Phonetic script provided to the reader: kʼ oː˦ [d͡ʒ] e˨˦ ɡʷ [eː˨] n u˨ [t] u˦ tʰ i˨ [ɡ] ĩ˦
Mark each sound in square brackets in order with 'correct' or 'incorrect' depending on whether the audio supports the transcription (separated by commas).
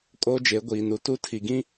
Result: correct, incorrect, correct, correct